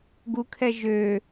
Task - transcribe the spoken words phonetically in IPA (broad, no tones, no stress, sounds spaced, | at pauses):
ɡ u kʰ ɛ ʒ ø